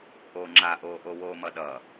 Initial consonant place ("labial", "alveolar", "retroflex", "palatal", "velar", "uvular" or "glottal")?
glottal